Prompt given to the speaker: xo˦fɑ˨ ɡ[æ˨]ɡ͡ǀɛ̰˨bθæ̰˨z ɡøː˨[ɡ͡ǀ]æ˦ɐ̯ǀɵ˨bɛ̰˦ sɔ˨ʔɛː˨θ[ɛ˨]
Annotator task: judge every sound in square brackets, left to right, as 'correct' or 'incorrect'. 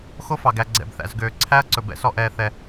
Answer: correct, incorrect: ǀʰ, correct

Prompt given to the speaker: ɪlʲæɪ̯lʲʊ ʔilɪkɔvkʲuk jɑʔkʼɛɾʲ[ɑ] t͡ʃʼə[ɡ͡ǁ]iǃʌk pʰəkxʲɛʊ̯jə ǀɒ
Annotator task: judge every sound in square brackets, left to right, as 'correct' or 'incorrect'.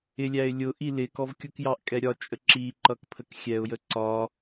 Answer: incorrect: ɒ, incorrect: ǁ

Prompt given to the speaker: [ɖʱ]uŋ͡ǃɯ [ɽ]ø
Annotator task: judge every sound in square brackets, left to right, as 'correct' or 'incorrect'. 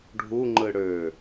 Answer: correct, correct

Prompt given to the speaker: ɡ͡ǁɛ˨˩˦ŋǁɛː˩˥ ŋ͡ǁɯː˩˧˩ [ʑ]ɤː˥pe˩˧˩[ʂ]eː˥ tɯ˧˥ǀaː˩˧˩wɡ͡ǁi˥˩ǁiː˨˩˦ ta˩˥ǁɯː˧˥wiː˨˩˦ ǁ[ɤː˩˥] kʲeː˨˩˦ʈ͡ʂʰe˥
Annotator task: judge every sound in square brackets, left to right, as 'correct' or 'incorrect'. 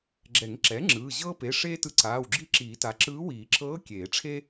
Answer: correct, correct, incorrect: ɤː˧˥

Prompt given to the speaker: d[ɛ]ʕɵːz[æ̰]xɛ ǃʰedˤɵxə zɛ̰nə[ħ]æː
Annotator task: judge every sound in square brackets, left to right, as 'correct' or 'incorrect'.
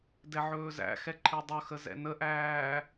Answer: correct, correct, incorrect: ʔ

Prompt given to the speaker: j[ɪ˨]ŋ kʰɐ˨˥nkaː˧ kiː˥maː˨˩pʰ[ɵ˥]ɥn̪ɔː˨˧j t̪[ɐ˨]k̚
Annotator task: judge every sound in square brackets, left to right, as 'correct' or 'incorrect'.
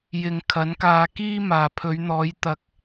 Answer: correct, incorrect: ɵ˨˧, correct

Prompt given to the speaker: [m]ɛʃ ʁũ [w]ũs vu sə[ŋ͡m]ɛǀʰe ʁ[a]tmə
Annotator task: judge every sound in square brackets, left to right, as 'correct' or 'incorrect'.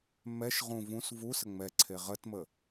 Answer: correct, incorrect: v, correct, incorrect: ə

